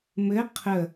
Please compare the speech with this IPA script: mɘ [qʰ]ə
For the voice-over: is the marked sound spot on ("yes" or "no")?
yes